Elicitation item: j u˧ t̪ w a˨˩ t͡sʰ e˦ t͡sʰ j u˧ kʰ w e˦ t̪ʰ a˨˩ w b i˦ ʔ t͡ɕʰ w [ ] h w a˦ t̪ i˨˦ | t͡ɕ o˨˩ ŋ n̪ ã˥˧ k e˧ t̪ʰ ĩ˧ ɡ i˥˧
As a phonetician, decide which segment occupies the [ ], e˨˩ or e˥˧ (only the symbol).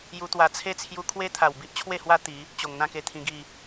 e˥˧